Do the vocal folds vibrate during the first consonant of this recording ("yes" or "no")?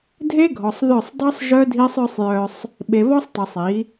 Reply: yes